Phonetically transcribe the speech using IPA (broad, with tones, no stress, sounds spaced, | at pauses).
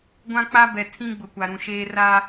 ɡʷ ã˦ k͡p a˦ b ɛ˨ tʰ ĩ˦ ɡ͡b ʊ˨ kʷ a˨ ɾ ũ˨ ʃ eː˦ r a˦